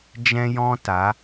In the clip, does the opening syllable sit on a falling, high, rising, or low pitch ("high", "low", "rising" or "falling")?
high